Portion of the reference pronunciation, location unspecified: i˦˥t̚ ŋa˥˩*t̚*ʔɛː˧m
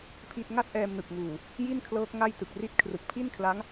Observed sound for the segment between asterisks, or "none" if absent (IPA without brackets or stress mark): t̚